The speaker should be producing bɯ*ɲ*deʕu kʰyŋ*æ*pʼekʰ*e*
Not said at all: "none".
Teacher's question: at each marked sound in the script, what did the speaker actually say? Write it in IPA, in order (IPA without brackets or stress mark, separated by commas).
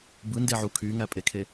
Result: n, æ, e